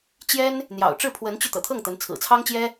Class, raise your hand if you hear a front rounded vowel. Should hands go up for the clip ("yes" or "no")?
yes